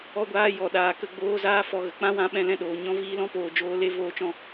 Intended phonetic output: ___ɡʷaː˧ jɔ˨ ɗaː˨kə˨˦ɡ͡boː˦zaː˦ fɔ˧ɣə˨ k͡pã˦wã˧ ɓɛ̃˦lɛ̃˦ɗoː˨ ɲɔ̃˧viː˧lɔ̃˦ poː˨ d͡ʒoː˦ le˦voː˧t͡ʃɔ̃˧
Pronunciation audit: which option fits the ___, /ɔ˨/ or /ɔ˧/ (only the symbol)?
ɔ˧